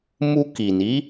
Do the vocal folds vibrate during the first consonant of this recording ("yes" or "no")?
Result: yes